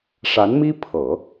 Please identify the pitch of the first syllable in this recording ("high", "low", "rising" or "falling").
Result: rising